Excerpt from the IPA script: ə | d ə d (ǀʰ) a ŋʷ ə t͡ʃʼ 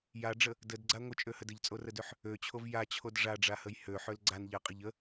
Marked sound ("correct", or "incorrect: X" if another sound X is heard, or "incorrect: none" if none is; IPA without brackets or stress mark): incorrect: ɡ͡ǀ